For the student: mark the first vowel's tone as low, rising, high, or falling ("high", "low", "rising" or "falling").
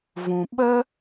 low